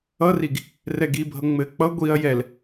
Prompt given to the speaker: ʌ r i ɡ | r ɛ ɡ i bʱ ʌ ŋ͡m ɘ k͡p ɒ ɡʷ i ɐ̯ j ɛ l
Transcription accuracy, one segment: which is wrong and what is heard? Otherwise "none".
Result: ɒ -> ʌ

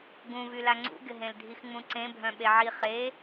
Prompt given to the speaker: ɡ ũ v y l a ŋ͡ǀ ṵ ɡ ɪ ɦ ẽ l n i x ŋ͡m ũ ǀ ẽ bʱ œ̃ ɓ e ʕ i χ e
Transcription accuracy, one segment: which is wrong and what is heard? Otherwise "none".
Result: n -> dʱ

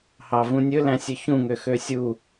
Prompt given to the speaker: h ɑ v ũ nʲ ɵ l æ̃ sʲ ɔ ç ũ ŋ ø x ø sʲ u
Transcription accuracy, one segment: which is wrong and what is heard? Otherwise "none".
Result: ɔ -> ɵ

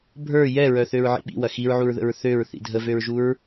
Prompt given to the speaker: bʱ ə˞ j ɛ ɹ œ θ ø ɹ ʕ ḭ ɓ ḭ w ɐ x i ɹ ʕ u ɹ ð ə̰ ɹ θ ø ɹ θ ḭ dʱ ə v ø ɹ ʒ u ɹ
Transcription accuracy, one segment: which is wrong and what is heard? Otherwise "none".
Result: none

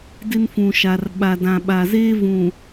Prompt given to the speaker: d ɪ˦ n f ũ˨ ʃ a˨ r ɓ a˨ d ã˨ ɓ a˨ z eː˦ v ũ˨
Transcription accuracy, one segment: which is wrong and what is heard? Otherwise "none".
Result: none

